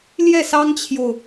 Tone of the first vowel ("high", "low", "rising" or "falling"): falling